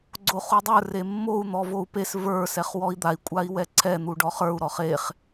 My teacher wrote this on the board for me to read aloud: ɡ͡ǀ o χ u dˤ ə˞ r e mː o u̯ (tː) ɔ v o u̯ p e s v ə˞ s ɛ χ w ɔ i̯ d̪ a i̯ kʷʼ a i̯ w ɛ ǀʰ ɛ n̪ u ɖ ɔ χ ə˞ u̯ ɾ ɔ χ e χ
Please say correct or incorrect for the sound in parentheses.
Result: incorrect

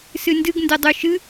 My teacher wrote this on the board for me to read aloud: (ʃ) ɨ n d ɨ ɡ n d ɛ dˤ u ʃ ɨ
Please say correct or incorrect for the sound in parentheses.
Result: incorrect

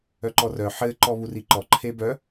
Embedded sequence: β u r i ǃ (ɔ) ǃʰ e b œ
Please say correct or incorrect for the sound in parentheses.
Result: correct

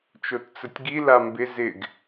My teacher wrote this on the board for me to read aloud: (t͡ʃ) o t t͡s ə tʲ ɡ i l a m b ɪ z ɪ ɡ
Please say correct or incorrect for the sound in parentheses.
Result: correct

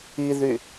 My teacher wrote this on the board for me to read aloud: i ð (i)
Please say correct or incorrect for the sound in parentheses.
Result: incorrect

